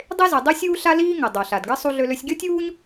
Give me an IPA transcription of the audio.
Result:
dˤ e˥ z ɘ˩ dˤ i˥ sʲ uː˥ ɬ a˥ l iː˥ ŋ ɘ˩ dˤ o˩ ɬ a˩ d ɡ ɨ˥ sˤ u˥ ɮ ø˥ l ø˥ sʲ ɡʲ ɔ˥ tʲ uː˥ ɲ

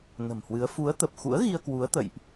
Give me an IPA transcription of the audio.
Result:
n ə̤˨˩ m h w ɨ˨˦ ə̯ f u˨˦ ə̯ t̪ ə˨˩ p̚ x ṵ˧˥ ə̯ ɣ i˧ ə̯ k w u˨˦ ə̯ t̪ ə̰˧˨ j ʔ

